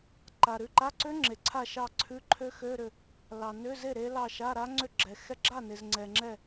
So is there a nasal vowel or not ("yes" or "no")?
no